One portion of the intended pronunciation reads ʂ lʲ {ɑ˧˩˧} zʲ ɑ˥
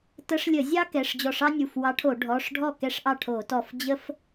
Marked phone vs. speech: incorrect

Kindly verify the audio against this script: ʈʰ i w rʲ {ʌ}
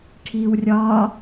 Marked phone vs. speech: incorrect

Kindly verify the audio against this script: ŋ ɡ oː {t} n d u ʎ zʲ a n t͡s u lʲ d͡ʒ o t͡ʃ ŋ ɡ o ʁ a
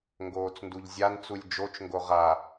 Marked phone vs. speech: incorrect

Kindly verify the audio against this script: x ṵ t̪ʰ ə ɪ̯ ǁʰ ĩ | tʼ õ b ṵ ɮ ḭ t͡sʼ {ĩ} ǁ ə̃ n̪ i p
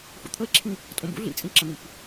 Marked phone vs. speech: correct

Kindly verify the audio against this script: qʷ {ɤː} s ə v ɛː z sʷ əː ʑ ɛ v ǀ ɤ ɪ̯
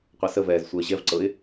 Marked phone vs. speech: incorrect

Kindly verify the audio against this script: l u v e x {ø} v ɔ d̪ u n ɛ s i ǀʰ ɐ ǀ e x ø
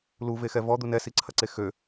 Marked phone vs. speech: incorrect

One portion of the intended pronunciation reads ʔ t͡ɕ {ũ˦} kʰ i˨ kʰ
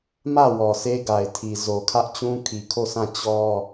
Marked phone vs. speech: correct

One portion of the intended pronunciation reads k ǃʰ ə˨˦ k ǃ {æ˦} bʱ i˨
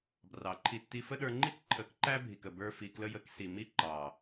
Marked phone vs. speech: correct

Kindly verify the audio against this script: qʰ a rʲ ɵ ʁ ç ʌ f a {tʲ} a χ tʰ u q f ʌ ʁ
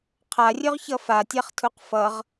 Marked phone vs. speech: correct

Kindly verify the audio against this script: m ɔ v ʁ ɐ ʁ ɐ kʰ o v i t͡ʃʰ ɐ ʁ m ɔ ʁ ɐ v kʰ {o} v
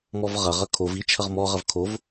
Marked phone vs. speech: correct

